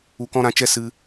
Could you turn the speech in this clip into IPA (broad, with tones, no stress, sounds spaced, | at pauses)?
u˧ k ɔ̃˦ ɾ ã˧ t͡ʃ ɛ˦ s ɨ˧